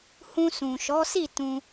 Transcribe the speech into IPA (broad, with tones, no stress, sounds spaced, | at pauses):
h ũ˧ s ũ˨ ʃ ɔ˨˦ s i˦˨ t ũ˧